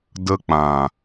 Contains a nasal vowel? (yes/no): yes